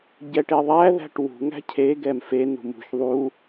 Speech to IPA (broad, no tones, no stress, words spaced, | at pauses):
ɟɛʈeðˤæ ðæ̤ʈwṳ ŋæ̤cʰe ɡɛmfe nṳmṳç ðˤu